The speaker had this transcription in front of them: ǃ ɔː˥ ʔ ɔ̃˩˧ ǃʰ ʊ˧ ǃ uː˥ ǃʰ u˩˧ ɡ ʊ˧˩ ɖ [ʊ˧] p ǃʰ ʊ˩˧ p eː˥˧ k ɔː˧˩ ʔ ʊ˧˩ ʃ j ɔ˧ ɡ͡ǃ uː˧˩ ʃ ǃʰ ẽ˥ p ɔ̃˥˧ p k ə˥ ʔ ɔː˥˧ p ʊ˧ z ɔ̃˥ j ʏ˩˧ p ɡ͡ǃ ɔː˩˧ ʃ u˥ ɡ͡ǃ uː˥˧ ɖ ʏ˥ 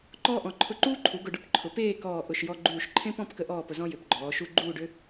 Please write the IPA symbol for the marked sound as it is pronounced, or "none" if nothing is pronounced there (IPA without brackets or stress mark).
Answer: ʊ˥